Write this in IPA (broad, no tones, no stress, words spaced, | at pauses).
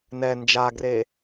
nɛ nd͡ʒaɡre